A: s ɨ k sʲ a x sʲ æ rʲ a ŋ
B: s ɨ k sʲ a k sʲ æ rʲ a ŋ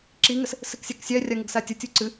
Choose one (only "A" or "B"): B